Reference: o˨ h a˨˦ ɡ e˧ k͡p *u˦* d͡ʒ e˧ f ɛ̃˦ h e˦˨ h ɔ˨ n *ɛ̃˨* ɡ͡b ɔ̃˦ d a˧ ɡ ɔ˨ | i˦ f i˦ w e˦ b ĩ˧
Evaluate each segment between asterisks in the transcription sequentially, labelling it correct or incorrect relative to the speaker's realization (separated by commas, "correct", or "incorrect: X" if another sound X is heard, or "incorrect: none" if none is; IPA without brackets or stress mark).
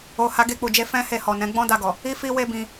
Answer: incorrect: u˨, incorrect: ɛ̃˨˦